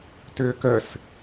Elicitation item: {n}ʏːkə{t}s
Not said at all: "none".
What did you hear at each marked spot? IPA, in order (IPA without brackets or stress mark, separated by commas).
t, none